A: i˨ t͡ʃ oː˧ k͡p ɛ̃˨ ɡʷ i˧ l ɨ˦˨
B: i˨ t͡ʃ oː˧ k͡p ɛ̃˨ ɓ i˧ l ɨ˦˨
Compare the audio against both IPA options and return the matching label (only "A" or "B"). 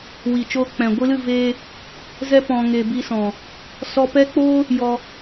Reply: A